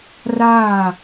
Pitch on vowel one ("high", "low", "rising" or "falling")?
falling